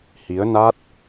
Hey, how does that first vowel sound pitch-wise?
rising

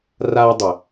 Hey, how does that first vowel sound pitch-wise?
high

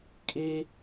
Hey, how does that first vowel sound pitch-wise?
high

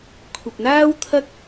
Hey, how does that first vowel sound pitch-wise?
low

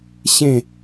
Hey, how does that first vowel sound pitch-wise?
falling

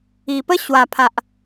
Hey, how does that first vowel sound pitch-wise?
low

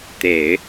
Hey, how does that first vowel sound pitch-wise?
low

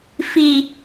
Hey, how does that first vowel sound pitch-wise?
low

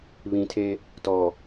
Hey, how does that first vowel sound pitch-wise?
low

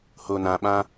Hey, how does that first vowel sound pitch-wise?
low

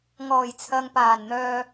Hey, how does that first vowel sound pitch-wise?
low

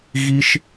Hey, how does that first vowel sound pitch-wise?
high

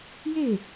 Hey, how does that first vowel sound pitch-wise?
falling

